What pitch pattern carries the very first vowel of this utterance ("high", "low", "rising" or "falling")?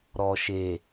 low